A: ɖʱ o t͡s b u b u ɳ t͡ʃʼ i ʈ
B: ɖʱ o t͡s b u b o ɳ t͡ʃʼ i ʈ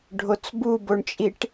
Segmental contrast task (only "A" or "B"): B